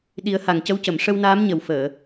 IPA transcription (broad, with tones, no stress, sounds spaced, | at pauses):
ɗ i˨˩˦ ə̯ h a˨˩ ŋ c ə˧ w c ə˨˩˨ m ʂ ə˧ w n aː˧˥ m ɲ ə˨˩ w f əː˨˩˨